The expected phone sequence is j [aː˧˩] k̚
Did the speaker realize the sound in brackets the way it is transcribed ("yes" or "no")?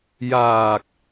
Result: yes